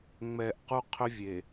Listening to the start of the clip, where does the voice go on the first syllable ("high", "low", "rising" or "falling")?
low